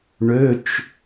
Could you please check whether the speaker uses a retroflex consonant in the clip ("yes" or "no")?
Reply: yes